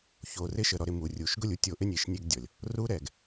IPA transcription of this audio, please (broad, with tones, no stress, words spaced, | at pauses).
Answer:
ço˨rɪ˦ʃə˨ ɾɔ˨ɾɪ˨ mu˨rʲu˨ʃ ɡʊ˦˨lʲu˦tʲo˨ʔɪ˦ nʲe˨ʃnʲe˦ɡdʲɔ˨lʲ | ru˦ɾɛ˨ɡ